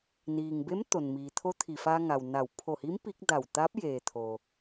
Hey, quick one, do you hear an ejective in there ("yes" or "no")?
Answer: no